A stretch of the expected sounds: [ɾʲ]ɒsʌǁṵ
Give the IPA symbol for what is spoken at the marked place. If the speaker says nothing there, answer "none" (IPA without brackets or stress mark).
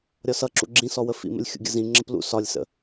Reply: ɾʲ